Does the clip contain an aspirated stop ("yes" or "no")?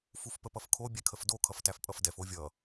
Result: yes